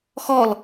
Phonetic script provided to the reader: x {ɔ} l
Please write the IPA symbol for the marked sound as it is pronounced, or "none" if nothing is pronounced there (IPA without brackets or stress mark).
ɔ